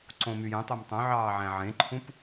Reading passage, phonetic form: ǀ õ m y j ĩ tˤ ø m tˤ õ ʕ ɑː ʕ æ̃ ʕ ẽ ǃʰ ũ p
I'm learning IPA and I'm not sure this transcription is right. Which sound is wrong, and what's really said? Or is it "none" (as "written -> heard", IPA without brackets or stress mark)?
ĩ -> ẽ